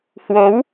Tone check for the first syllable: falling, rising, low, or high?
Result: rising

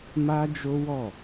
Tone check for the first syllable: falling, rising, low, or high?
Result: high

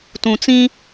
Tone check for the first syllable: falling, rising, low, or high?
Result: low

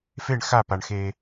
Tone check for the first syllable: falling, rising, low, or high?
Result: falling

